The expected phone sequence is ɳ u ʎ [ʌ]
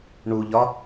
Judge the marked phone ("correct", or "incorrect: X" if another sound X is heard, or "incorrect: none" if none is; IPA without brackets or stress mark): incorrect: ɒ